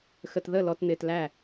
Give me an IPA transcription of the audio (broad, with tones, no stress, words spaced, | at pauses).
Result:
xə˨tðə˦˨ lɔ˨tn̪ɪː˨t læ˦˨